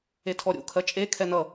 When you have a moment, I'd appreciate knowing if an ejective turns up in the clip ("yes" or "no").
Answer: yes